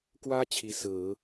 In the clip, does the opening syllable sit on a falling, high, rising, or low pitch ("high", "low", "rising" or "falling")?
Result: high